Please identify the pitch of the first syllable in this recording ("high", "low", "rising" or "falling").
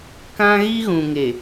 high